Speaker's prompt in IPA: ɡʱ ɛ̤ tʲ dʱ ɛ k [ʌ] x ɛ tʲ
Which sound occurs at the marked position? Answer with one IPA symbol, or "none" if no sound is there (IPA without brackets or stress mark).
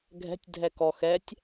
ɔ